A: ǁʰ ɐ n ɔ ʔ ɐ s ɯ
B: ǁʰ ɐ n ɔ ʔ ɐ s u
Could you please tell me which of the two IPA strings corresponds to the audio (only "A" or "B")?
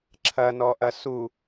B